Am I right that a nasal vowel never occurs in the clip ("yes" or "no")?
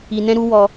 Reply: no